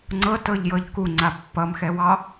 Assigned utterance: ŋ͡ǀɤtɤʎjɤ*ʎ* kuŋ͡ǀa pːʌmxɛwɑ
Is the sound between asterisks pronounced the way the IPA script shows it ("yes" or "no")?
yes